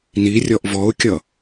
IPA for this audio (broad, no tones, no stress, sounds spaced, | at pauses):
n i rʲ ɔ ʔ v ɔ ʊ̯ kʲ ʌ